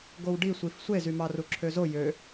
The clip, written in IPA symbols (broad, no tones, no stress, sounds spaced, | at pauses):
ɡ o w ɖ i sʷ i f sʷ e z y m ɑ r u ǁʰ ø z o j ø